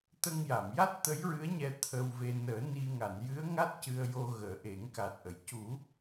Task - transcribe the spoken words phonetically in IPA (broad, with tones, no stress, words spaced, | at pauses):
t̪ə˧ŋja˨˩˨mja˦˥t̚ t̪ə˧˥jɹɨ˧˥ə̯ɲɛ˧ t̪ʰə˧wve˧ nəː˨˩˦ ni˧ŋa˨˩˨n jɨ˧˥ə̯ŋa˦˥t̚ cɨ˧ə̯jo˧ ɣəː˨˩˦ʔe˨˩˦ŋka˨˩t̚ʔə˨˩˨j cu˨˩˦